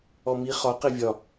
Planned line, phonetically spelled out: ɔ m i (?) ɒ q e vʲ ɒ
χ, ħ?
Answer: χ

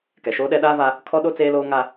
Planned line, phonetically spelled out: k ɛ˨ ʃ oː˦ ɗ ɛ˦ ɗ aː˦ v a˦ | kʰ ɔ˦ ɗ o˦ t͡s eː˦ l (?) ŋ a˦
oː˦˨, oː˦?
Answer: oː˦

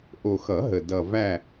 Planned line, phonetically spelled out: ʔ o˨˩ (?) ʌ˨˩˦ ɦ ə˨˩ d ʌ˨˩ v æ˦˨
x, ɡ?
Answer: x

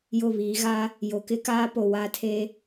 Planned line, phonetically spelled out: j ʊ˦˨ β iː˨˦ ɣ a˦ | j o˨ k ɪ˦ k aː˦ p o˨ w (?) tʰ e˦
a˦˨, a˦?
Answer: a˦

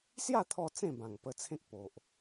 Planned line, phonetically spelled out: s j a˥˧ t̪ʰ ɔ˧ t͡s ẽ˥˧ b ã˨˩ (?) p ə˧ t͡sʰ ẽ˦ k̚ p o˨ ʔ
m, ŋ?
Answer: ŋ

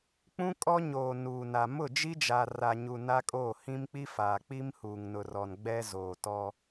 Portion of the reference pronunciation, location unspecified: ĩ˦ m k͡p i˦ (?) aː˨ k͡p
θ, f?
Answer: f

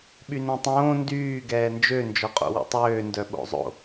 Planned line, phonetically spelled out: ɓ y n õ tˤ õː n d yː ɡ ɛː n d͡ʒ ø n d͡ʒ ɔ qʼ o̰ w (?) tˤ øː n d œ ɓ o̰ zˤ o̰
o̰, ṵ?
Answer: ṵ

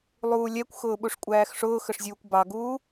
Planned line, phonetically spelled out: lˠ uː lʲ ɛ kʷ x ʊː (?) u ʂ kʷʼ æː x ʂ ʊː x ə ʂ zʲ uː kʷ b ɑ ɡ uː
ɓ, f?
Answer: ɓ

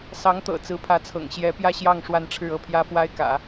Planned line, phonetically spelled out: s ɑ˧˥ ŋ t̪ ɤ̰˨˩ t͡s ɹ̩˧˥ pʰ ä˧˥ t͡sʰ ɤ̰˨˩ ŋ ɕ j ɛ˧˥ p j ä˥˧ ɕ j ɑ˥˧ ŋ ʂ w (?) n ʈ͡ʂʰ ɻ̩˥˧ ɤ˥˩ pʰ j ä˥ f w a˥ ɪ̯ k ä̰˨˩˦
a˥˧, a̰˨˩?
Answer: a˥˧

